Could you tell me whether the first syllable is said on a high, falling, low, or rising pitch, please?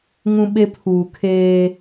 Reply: high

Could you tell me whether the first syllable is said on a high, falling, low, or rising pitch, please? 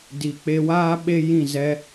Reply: low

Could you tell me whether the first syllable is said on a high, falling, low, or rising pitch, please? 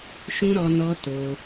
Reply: high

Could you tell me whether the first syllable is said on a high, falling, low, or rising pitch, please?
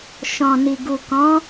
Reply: low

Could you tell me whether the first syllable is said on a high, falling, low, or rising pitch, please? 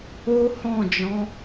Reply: high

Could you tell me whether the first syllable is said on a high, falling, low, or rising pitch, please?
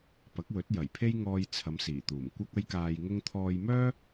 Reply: rising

